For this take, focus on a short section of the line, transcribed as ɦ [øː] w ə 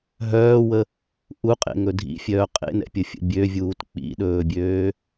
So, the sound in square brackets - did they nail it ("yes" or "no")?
no